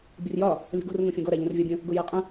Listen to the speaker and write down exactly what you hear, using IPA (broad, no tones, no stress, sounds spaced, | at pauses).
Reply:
bʲ ʊ r j ɒ | lʲ ɔ̤ ɡ o̤ r ŋ õ fʲ ɔ̃ ɡ ɔ ɾ a ʎ ə̃ r vʲ ɒ bʲ ə̃ | ɡ o j a qʼ ə̃